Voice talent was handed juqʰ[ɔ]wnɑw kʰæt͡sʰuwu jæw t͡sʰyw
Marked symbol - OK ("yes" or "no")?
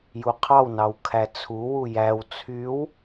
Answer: no